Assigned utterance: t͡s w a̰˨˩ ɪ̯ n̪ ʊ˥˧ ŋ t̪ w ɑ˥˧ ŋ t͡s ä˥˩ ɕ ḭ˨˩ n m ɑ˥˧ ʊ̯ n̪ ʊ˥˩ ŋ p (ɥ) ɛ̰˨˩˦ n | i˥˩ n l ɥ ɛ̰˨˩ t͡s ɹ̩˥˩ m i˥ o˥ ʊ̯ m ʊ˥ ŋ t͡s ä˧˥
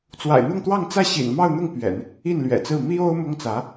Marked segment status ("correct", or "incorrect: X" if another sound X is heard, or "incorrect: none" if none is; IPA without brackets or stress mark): correct